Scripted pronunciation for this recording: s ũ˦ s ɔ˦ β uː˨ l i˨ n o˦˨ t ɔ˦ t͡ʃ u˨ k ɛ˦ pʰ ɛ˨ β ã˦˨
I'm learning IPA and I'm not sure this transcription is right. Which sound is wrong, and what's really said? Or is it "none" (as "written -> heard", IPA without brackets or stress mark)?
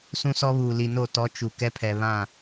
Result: none